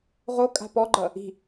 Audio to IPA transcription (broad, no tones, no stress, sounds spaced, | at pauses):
ʁ o kʼ a̤ p ɔ ɡ͡ǃ ʌ | i̤